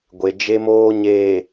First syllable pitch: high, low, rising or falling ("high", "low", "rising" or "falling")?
low